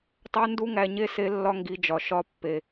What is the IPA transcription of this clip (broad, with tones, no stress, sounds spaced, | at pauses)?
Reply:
tˤ æ˦ n d u˦ ŋ æ˧ ɲ e˦˨ s e˦ lː ɒ˦ ŋ ɡ i˧ d͡ʒ ɒ˨ ʃ ɒ˧ pː e˨